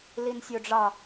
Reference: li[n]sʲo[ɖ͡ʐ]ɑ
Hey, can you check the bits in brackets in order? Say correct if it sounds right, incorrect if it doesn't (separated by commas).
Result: correct, correct